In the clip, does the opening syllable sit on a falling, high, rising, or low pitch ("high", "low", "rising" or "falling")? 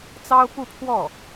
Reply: high